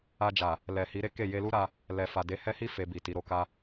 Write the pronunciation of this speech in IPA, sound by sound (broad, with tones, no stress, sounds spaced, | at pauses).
a˧ d͡ʒ a˨ | l ɛ˨ h i˨˦ ɾ e˦ k e˦˨ j e˧ l u˦ ɾ a˧ | l ɛ˨ f a˨ d e˨˦ h ɛ˦ h i˦ f e˧ b i˨ t i˨˦ ɾ o˧ k a˦